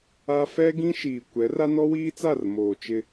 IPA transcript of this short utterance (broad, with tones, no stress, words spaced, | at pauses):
a˦ fɛ˦ɡĩ˦ ʃiː˨kʷɛ˨˦ ra˦nɔ˦wiː˦t͡sa˦˨r moː˨t͡ʃɪ˦